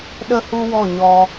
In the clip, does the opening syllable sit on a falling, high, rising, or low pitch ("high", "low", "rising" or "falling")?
high